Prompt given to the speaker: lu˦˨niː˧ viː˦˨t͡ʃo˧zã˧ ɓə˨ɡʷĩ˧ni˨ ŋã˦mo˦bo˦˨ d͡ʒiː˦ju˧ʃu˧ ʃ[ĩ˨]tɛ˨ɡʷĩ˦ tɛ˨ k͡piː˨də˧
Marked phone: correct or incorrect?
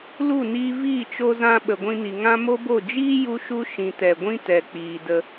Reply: correct